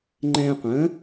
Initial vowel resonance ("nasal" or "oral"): nasal